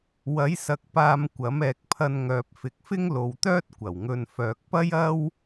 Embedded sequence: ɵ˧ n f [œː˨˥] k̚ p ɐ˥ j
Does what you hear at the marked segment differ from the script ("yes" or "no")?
yes